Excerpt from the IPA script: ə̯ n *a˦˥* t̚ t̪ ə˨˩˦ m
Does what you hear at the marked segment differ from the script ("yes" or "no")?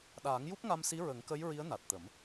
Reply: yes